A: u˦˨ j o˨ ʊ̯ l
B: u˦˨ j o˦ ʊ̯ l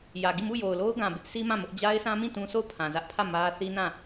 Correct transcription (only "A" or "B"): A